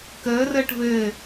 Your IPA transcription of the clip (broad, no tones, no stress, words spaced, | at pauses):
kəːrəːʈ vɘː